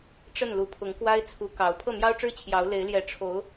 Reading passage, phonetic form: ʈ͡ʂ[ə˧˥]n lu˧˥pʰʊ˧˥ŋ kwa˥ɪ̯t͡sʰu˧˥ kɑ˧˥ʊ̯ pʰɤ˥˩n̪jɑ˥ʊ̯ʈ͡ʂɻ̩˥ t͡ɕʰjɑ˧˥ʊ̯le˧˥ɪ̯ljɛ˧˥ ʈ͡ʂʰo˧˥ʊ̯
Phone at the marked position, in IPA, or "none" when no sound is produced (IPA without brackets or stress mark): ə˥˩